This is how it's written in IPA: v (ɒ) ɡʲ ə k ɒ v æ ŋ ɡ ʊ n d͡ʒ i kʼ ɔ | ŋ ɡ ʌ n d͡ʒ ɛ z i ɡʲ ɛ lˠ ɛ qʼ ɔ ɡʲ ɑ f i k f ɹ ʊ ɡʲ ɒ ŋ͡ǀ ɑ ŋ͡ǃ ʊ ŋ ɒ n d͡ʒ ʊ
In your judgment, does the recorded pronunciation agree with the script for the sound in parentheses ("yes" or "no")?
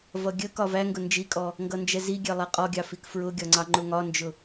no